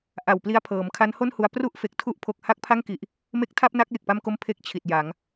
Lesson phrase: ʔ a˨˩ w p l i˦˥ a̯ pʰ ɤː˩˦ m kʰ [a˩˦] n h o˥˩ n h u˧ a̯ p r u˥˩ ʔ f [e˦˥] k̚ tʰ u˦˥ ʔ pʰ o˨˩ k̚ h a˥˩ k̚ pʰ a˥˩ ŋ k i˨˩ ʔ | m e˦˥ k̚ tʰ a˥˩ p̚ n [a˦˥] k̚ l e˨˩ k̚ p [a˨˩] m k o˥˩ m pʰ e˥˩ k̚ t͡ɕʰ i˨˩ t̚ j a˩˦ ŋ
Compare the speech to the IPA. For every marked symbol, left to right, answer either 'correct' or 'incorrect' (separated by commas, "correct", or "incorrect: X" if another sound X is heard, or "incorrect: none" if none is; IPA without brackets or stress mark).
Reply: incorrect: a˦˥, incorrect: e˨˩, correct, incorrect: a˥˩